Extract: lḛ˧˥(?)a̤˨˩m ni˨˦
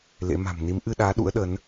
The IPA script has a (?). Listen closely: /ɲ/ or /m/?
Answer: m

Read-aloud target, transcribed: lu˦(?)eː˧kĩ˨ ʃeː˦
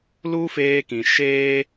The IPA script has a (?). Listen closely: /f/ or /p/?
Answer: f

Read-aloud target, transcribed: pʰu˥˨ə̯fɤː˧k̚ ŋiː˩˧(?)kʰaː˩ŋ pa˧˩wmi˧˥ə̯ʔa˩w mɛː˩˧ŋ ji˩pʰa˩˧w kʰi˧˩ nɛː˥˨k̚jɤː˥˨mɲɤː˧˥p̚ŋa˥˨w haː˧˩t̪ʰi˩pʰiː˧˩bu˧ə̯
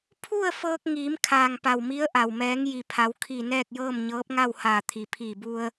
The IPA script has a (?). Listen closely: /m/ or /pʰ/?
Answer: m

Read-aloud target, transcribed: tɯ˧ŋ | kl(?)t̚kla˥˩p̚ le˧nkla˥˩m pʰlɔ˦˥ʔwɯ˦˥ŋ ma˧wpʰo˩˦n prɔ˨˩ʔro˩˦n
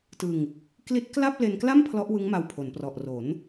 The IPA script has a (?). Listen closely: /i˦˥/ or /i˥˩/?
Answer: i˦˥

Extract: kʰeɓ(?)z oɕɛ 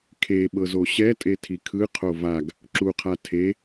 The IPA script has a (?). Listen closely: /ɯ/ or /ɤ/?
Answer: ɤ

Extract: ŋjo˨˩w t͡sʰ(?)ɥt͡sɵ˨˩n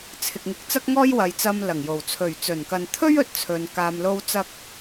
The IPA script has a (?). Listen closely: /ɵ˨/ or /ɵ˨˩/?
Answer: ɵ˨˩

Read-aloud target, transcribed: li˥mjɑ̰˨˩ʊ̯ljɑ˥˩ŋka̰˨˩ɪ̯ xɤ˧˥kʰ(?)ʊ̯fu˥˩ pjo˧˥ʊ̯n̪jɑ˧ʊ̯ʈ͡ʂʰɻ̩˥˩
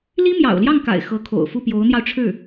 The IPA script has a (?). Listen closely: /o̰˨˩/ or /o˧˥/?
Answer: o̰˨˩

